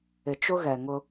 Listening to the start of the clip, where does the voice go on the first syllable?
low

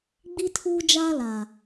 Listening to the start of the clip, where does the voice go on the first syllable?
high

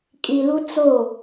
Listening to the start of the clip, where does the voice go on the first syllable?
low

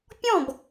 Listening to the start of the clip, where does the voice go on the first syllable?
falling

